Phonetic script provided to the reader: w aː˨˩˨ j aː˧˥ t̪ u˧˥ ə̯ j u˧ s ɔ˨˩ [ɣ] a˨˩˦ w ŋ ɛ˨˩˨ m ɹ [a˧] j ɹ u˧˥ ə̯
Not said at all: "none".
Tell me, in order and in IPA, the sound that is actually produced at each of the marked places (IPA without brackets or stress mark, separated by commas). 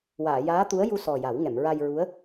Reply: j, a˧